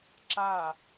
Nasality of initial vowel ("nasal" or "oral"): oral